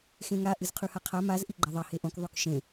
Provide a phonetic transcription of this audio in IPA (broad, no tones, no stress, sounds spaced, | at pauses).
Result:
x ẽ ŋ a ʔ ɨ z qʰ ʉ h a qʰ a m a z ʔ i ɡ͡ǃ a ðˤ ɐ h e ʔ õ k ðˤ ʉ k ʃ ẽ